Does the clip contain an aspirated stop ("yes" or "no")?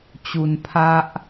yes